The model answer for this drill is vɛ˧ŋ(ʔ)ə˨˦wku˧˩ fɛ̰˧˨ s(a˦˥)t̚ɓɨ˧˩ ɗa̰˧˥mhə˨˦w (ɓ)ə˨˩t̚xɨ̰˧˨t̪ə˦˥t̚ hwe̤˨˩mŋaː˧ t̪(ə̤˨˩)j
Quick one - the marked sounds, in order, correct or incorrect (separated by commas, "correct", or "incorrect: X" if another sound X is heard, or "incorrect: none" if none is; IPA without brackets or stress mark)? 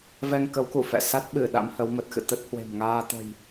incorrect: k, correct, incorrect: m, correct